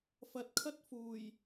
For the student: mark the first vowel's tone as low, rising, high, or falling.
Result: low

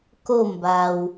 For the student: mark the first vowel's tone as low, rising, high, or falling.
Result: falling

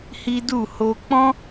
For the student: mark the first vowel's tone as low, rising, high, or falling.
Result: high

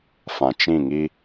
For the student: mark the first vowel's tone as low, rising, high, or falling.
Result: low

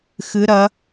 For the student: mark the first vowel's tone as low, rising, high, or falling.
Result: rising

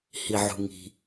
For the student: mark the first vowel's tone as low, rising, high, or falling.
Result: low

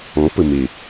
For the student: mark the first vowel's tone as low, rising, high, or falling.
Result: rising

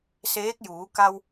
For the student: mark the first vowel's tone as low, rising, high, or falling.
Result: rising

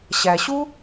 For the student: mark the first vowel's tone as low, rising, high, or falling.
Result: low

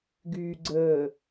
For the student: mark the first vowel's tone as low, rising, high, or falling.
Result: low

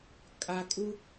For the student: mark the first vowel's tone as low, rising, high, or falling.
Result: low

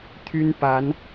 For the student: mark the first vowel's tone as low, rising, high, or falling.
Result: high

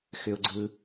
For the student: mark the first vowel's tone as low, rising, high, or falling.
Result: low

